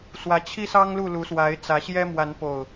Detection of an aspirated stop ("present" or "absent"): present